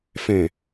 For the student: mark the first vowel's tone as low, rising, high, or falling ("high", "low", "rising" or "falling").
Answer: low